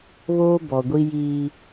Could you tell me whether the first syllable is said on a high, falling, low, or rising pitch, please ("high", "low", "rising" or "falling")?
high